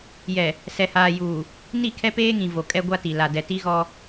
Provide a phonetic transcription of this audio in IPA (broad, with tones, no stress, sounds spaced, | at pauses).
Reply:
j ɛ˨ | s ɛ˨ h aː˨ j uː˨ | n i˦˨ kʰ ɛ˦ p eː˦ ŋ ĩ˨ v o˨ kʼ ɛ˦ ɡʷ a˦ t i˨ l a˨ d ɛ˨ t i˦ ɣ ɔ˦